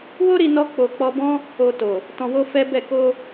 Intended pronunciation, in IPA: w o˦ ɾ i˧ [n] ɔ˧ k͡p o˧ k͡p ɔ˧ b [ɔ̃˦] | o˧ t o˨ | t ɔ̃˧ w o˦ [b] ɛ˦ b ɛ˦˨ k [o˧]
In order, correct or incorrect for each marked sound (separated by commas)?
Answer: correct, correct, incorrect, correct